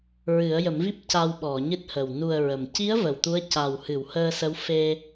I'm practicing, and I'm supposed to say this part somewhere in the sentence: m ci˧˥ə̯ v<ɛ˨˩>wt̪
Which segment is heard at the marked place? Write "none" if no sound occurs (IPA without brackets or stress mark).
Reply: ə˨˩